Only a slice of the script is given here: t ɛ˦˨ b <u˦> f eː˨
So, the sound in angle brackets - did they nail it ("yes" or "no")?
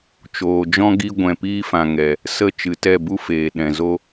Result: yes